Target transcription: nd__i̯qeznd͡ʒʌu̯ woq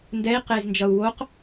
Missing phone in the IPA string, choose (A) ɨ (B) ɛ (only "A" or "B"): B